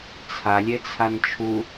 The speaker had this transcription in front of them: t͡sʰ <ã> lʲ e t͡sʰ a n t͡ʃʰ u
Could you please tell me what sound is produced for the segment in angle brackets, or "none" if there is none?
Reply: a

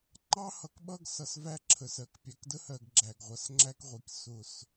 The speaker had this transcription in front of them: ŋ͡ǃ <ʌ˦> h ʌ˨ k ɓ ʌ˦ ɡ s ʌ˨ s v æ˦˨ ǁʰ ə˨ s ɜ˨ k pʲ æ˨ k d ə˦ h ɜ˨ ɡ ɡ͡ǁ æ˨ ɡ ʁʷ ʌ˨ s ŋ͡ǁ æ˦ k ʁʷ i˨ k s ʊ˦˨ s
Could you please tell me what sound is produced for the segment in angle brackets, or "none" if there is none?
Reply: ɑ˦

